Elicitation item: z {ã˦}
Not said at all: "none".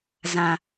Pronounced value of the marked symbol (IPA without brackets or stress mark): ã˨